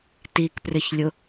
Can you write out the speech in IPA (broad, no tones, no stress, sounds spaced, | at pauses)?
t i k p r ɪ ç lʲ ʊ